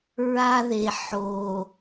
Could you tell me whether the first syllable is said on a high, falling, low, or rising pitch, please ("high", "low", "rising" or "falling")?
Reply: high